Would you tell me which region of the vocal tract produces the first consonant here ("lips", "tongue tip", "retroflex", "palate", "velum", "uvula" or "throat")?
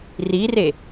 tongue tip